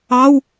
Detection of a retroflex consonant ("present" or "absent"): absent